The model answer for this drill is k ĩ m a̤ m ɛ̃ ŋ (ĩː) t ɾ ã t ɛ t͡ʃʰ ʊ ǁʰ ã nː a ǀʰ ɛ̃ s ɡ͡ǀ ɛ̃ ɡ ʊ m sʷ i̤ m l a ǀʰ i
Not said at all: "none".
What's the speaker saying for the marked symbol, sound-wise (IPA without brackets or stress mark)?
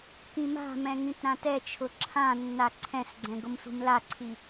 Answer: ĩ